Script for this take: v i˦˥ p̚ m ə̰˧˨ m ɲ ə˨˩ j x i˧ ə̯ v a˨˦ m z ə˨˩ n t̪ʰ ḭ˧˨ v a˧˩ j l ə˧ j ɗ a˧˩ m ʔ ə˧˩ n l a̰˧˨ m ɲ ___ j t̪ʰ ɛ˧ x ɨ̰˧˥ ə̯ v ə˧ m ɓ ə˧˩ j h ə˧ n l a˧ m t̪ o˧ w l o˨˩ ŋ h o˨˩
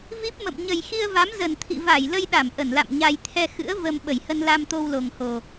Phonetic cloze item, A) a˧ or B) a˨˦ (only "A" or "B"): A